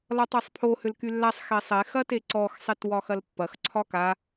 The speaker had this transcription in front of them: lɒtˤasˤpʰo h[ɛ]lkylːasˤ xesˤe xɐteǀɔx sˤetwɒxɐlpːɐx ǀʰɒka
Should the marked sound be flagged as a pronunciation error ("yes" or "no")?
yes